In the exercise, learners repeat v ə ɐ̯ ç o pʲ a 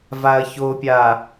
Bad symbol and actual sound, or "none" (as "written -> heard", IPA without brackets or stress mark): ə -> a